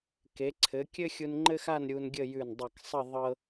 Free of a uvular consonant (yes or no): yes